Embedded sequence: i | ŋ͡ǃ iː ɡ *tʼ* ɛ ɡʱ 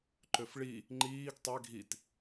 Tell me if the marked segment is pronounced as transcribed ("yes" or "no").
no